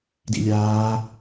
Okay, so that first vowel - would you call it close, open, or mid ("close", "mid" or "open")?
close